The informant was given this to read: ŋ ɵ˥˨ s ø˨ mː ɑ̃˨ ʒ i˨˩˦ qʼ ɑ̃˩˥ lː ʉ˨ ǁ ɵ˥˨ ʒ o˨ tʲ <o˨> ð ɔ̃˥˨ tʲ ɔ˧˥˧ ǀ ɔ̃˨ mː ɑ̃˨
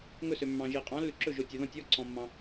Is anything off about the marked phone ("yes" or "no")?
no